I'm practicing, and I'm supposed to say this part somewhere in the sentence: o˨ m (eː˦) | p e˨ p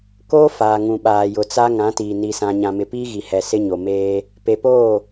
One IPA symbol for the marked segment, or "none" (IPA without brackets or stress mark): eː˦